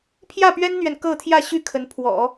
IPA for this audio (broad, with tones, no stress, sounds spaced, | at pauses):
pʰ j ä˥˩ p ɥ ɛ˥ n n̪ ɥ ɛ˨ n k ɤ˥˧ t̪ʰ j ä˥˩ ɕ y˥ kʰ ə˧˥ n pʰ w ɔ̰˨˩˦